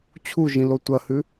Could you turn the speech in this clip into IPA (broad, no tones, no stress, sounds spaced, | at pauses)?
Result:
t͡ɕʰ u ʒ ĩ l o tʷ ɐ h ʉ